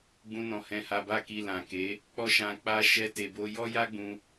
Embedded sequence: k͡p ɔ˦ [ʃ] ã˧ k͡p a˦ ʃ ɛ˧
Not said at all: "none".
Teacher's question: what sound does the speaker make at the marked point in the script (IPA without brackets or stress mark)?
ʃ